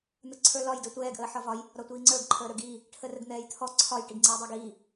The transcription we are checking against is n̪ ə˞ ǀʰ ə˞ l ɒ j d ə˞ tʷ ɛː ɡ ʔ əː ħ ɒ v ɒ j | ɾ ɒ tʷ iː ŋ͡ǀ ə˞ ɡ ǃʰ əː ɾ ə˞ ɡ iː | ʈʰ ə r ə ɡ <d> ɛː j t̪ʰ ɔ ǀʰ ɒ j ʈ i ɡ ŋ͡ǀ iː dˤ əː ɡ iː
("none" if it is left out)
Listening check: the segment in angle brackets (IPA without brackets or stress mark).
n̪